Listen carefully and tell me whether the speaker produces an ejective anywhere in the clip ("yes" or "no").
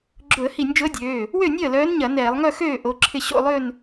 no